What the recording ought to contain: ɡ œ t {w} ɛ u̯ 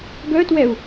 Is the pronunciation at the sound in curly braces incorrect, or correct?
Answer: correct